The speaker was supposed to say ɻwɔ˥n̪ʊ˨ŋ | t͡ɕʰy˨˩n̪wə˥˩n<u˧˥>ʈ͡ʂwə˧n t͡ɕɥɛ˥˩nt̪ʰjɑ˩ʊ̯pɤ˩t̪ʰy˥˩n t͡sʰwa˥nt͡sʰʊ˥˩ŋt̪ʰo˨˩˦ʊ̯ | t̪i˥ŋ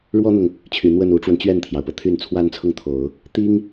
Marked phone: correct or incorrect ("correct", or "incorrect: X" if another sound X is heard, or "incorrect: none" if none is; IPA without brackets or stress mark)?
correct